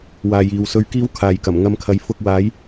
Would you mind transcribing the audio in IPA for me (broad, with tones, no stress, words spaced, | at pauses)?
waː˨jiː˨w sɵ˧ɥkiː˥wkʰaː˨jkɐ˨˩m ŋɐ˨˧mkʰɐ˨j fʊ˧k̚waː˨˥j